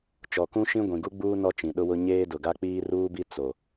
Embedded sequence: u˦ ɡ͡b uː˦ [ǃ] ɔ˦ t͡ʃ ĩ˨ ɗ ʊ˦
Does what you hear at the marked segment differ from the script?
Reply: yes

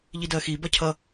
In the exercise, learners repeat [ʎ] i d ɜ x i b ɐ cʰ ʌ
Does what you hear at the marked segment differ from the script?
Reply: no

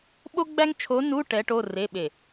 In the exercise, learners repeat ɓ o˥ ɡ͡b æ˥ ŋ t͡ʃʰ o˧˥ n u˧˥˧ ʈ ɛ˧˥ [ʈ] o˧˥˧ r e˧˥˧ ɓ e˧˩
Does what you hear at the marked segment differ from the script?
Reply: no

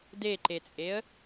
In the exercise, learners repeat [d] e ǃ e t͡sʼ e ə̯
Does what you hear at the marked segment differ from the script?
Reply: no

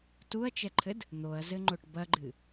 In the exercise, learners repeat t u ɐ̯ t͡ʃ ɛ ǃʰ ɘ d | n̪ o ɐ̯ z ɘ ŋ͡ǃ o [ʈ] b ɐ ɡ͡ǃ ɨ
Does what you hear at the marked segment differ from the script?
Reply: no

